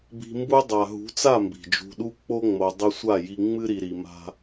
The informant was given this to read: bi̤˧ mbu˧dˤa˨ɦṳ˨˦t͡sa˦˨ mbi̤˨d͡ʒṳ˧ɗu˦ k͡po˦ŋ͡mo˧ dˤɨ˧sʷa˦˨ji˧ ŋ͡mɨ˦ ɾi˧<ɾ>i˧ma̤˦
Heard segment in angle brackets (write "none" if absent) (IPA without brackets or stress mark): ɾ